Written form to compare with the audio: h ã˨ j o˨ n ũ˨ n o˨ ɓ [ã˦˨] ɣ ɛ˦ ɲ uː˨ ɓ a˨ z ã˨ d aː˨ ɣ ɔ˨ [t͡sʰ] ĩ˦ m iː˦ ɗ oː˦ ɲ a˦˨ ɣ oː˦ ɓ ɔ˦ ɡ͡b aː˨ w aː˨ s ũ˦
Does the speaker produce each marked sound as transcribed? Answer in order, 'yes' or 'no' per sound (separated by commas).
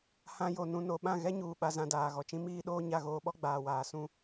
yes, no